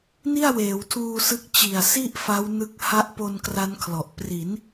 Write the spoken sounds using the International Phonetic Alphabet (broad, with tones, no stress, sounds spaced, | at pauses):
n i˥˩ a̯ w eː˩˦ w tʰ uː˧ s ɯ˦˥ k̚ t͡ɕ i˨˩ a̯ s i˥˩ ʔ f a˦˥ w n ɯ˦˥ k̚ h a˦˥ ʔ p o˧ n k r a˦˥ n kʰ l ɔ˨˩ ʔ p r i˩˦ n